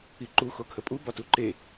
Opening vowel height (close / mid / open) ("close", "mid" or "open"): close